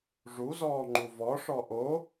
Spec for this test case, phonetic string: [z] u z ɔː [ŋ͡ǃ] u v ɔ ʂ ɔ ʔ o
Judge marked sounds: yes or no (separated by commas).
no, yes